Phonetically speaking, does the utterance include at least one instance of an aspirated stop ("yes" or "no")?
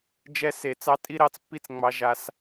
no